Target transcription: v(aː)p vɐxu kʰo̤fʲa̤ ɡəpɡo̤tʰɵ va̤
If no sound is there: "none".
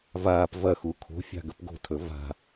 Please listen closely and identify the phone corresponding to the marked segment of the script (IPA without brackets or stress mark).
aː